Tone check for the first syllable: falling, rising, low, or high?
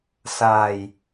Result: low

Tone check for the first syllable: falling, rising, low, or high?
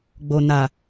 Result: low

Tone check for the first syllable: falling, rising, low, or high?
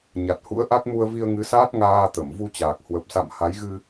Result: low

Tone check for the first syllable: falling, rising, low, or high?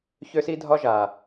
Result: high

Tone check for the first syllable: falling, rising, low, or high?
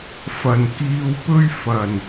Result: low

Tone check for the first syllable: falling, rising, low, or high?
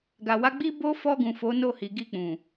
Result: low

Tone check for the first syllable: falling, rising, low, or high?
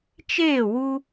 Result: falling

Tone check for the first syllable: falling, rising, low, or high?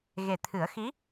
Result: low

